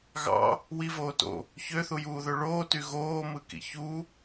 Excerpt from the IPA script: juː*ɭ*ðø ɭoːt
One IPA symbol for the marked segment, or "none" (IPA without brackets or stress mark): none